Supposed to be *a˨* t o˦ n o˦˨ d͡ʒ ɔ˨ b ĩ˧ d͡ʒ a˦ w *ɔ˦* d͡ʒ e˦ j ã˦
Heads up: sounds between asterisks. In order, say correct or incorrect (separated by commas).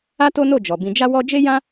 incorrect, correct